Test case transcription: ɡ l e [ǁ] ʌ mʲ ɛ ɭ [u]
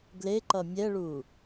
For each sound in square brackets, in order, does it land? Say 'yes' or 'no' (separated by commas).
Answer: no, yes